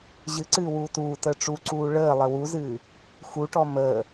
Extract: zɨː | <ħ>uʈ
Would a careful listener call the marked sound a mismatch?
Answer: yes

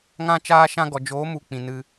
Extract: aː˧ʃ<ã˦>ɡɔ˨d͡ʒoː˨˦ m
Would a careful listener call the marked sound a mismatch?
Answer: yes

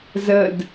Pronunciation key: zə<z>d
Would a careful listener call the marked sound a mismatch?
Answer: yes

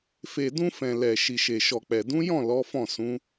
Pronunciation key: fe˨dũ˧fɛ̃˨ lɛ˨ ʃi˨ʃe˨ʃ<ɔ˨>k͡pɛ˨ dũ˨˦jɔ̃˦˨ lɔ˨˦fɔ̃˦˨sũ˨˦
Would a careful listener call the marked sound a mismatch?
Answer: no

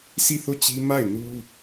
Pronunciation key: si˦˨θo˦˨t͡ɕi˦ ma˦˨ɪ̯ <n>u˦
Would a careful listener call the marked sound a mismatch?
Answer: no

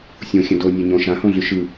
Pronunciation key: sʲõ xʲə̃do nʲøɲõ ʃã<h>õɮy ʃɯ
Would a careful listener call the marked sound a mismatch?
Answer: no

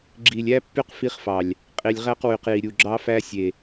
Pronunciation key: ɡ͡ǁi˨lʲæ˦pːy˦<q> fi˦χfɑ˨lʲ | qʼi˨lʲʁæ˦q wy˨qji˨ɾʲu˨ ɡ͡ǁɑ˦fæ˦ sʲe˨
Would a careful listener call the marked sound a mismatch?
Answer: no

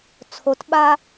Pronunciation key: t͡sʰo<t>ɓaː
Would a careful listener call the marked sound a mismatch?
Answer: no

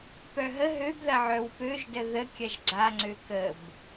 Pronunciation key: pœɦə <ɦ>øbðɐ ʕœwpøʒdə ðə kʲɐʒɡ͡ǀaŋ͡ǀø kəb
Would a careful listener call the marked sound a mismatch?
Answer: no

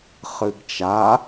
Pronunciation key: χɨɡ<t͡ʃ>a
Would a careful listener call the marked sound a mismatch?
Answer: no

